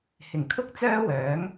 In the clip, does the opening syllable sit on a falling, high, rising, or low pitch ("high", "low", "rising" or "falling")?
low